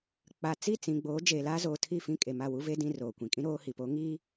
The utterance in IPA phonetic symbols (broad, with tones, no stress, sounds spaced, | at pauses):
k͡p a˨ t͡s i˦˨ t͡s ĩ˨ ɡ͡b oː˨˦ d͡ʒ eː˨ l aː˦ z oː˨ tʰ i˦˨ f ĩ˦˨ kʼ e˨ m a˦˨ w u˦ v e˦ d ĩ˦ r oː˨ kʷ ĩ˨ kʼ ĩ˦ ɾ oː˦ h i˨ p oː˨˦ ŋ i˦